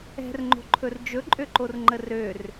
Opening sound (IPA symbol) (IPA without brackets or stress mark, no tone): ɛ̤